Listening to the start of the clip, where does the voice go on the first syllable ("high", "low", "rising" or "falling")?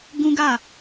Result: high